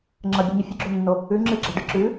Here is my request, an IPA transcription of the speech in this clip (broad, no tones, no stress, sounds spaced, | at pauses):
ŋ͡ǁ ɐ bʲ ʉ ɲ ɵ fʲ ɨ ɡ͡ǁ o nː o | ʉ ŋ͡ǁ ɨ ɡ͡ǁ ɐ ɖ ɨ ǁ ʉ